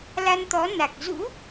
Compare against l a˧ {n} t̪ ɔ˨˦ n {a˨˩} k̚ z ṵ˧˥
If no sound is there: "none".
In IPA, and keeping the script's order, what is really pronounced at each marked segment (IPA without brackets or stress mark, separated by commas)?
n, a˨˩